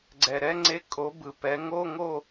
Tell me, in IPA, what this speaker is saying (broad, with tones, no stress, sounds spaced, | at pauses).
ɡ͡ǀ ɛ˨˩ ɾ ɛ˥ ŋ͡ǀ e˧˥˧ kʼ o˨˥ b ɯ˨˩ p ɛ˨˥ ŋ o˧˥˧ ŋ o˥˧